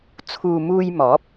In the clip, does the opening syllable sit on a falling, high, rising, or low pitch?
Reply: low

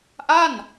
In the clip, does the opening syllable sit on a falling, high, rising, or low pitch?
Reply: falling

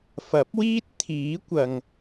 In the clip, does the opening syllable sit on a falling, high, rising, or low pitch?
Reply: rising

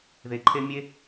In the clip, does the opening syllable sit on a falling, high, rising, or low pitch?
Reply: low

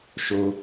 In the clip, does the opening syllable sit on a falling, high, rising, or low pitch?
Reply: high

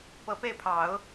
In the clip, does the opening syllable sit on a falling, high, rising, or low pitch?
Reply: low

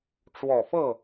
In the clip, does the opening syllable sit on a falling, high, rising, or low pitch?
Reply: low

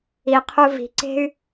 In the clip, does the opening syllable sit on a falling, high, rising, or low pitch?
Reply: low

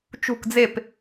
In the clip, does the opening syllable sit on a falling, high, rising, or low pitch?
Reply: falling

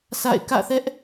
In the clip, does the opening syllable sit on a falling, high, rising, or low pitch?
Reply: falling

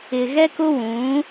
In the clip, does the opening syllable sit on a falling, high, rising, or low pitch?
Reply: low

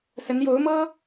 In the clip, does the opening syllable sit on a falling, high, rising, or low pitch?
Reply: rising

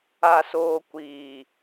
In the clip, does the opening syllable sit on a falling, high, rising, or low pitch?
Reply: low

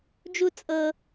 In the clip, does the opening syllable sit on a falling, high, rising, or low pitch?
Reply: high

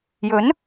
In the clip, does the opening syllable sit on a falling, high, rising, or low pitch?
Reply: rising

